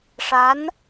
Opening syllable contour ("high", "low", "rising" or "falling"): rising